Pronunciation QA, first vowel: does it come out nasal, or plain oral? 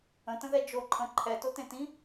nasal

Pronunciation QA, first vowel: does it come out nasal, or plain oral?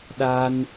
oral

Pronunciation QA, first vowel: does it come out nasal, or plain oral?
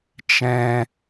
nasal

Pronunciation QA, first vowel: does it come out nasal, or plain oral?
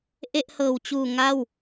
oral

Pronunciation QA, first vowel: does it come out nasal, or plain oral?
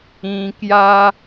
nasal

